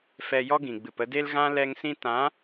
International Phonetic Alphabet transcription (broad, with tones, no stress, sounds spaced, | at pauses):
f ɛ˧ j ɔ˦ ɡ ĩ˨ ɡ͡b ɨ˨ p ə˧ d e˦ l ɣ ã˦ l ɛ˧ ŋ s ĩ˧ t ã˨˦